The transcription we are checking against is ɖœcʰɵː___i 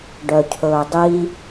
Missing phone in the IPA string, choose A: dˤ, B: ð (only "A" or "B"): A